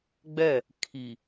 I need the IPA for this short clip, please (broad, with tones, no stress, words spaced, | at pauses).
ɡ͡bɛ˦˨ | kʰi˨